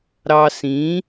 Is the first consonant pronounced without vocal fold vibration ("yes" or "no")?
no